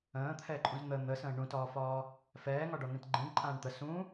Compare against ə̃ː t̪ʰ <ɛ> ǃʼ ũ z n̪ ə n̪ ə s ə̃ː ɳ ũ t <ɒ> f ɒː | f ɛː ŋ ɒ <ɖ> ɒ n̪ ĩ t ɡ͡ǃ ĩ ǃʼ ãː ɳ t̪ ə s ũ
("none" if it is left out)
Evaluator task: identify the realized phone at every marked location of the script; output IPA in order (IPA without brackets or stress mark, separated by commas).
ɛ, ɒː, ɖ